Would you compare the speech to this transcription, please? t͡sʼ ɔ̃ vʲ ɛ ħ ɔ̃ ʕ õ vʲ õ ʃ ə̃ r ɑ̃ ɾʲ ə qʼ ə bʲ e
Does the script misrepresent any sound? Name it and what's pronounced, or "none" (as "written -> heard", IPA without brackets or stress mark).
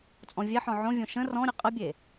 ɑ̃ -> ɔ̃